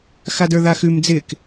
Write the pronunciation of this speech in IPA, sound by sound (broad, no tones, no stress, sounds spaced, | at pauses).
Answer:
x a d ə˞ ð a x ʉ m d͡z ɪ k